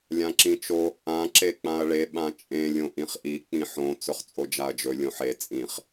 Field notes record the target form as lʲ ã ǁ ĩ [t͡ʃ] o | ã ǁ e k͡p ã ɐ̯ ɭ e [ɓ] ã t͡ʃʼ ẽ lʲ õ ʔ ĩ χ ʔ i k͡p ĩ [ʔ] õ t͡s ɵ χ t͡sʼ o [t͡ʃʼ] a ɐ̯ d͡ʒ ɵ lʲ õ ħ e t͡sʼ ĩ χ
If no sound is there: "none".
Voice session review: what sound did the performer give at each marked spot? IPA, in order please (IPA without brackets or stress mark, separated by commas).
t͡ʃ, ɓ, ħ, d͡ʒ